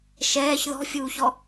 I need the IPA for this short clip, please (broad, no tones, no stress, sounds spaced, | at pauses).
ʃ ɛː ç ð ɔ̤ fʲ uː ç ɔ